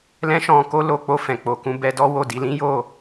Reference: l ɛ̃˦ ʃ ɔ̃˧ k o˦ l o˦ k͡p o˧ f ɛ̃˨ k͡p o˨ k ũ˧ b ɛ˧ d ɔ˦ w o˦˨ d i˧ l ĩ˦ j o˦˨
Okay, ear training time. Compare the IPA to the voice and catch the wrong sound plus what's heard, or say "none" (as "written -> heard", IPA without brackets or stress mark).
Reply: none